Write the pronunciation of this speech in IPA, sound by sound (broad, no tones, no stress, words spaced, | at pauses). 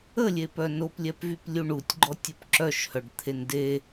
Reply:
əlʲepœ noplʲɛpvyplʲu ɳutʲɡ͡ǃɔtʲop ǁœʃhœɖt̪ʰen de